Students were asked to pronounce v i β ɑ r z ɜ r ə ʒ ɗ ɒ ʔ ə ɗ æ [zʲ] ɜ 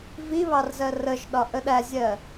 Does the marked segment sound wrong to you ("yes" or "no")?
no